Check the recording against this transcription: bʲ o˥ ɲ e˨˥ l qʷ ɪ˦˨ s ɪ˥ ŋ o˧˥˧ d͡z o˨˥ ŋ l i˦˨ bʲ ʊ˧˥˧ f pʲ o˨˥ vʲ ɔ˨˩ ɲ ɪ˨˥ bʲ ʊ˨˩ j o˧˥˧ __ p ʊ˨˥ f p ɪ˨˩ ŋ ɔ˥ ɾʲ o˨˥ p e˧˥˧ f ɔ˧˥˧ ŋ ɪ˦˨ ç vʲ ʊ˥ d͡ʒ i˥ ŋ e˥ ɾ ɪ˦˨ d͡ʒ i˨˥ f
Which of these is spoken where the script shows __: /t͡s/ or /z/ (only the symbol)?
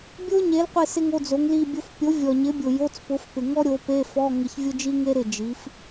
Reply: t͡s